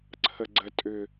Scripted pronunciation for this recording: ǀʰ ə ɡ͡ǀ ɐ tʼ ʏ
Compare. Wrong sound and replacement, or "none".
ɐ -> ə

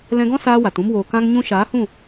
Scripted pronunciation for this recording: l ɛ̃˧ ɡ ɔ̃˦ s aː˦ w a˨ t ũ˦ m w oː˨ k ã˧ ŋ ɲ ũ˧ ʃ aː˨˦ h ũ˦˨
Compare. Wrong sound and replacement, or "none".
none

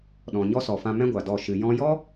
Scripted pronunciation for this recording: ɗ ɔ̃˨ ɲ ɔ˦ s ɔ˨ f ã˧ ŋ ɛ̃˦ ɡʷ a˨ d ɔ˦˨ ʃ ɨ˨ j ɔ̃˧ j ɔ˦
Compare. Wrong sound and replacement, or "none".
ŋ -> m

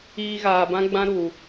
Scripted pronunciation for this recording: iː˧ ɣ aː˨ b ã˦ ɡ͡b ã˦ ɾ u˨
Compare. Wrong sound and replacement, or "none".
none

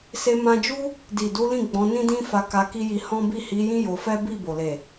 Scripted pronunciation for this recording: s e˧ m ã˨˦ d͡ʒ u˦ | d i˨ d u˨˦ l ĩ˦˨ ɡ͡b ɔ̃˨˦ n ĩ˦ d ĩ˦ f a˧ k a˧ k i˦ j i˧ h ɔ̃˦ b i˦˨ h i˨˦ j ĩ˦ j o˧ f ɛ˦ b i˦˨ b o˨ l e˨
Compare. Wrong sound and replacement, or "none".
ã˨˦ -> ã˧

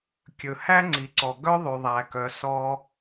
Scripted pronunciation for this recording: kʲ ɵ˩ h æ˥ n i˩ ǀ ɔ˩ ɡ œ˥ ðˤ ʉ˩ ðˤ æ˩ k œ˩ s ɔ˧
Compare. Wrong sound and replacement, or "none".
n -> ŋ͡ǀ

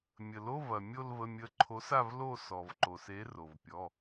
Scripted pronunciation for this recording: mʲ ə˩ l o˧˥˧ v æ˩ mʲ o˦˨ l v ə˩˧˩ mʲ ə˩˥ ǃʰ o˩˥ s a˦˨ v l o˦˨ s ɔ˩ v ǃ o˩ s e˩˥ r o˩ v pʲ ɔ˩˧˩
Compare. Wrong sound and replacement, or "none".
æ˩ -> ɐ˩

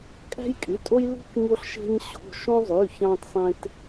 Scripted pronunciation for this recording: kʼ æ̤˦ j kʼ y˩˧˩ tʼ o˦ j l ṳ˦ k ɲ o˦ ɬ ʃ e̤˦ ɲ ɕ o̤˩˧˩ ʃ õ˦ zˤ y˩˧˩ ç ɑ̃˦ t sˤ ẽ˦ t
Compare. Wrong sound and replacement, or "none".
none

